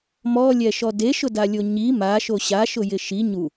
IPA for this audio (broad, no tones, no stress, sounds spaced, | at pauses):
m ɔ lʲ ɛ ʃ ɔ d e ʃ ʊ d a lʲ o ɲ i m a ʃ o ɕ a ʃ ʊ j ɪ ʃ i ɲ u